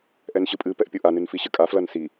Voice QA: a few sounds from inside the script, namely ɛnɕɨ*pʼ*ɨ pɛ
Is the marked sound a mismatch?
no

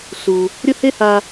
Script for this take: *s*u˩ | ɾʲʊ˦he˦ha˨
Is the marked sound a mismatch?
no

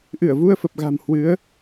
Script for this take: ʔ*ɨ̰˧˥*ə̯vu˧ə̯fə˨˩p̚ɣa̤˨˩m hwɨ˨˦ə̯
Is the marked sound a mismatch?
yes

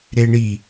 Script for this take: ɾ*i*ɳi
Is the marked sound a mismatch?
yes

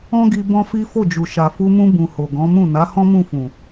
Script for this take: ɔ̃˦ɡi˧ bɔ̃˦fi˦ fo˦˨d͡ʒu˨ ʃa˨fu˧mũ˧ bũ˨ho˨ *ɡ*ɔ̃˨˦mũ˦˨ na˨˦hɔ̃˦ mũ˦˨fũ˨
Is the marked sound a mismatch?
no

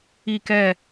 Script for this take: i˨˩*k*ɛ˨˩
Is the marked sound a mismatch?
no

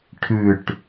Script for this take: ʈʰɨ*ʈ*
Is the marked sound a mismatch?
no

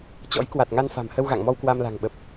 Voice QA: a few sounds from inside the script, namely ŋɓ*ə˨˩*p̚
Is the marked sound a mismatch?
no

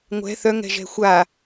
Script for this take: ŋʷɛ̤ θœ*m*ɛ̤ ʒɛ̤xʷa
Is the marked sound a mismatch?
yes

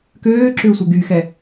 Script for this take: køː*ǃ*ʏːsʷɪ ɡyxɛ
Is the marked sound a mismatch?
yes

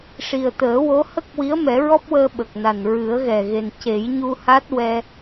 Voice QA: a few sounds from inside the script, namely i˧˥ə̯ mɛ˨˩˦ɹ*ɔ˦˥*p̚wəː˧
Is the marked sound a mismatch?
no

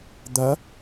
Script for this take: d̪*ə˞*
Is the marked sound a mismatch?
yes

